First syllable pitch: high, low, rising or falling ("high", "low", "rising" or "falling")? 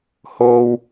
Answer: high